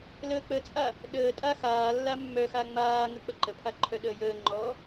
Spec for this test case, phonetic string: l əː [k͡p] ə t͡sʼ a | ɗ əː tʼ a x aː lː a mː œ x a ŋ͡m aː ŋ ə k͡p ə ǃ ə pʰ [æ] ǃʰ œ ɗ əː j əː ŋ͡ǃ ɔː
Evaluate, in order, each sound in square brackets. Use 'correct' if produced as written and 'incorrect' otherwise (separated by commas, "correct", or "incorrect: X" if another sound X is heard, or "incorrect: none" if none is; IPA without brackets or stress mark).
correct, incorrect: a